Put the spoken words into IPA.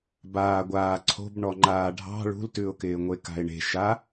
b aː ɡʷ aː ǀʰ o̤ b ɳ ɔ ŋ͡ǃ aː ɖʱ ɑ̤ ɭ ṳ l t ʉ ʊ̯ k ɪː ŋʷ e k a̤ ɪ̯ ɳ e̤ ʃ a

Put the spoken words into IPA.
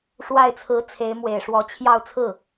ʂ w a˥˩ ɪ̯ t͡sʰ ɹ̩˧˥ t͡sʰ e˧˥ ɪ̯ m w e˨˩ ɪ̯ ʂ w ɔ˧˥ t͡ɕʰ j ɑ˥˧ ʊ̯ t͡sʰ ɹ̩˥˩

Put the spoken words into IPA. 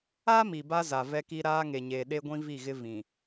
a˦ m i˨ b a˦ z a˨ v ɛ˦ k i˦ ɾ aː˦ ŋ e˨ ɲ eː˨ ɗ e˦ ɡʷ ĩ˦ v i˦˨ ɣ ɪ˦ v ĩ˨

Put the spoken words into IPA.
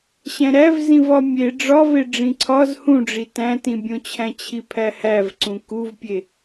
ɕ æ̃ ɾ æ v z ĩ v ɒ mʲ e ɖ͡ʐ ɒ v e ɖ͡ʐ ĩ ǀʰ ɒ z h ũ ɖ͡ʐ i t æ̃ t ĩ bʲ õ t͡ɕʰ æ̃ t͡ɕʰ i pʰ æ h æ v ǀ ũ k u v pʲ e

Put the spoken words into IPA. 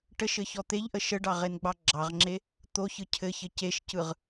ʈ ə ʃ ɘ ç ɔ t̪ e ʎ ʔ ə ʃ ə ɖ ɑ ʁ e n ɡ͡b ɑ ɡ͡ǁ ɑ ʁ ŋ͡ǁ e | t̪ o ç ɯ cʰ ɘ ç ɘ c e ʃ c ɯ ʁ

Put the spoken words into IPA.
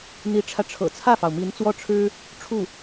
n̪ i˧˥ ʈ͡ʂʰ ä˧ ʈ͡ʂʰ ɤ̰˨˩ t͡sʰ ä˥˩ f ɑ˩ ʊ̯ m i˧˥ n t͡s w ɔ˥˩ ʈ͡ʂʰ ɻ̩˥ | ʈ͡ʂʰ u˥˩

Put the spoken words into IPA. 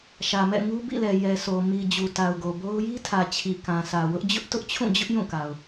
ʃ ä˨ m ɛ̰˦˨ ŋ u˦ b ḭ˦˨ l ɛ˨ j ɛ˨ s o˨ m i˨ d͡ʑ u˨ t a˨ ʊ̯ ɡ o˨ b o˦ ʊ̯ j i˦ tʰ ä˨ t͡ɕʰ i˨ k ã˨ sʰ ä˨ w ʊ˦ ʔ d͡ʑ ʊ˦ ʔ t ʊ˦ ʔ t͡ɕʰ ũ˦˨ d͡ʑ ʊ˦ ʔ j ũ˦˨ k a˨ ʊ̯

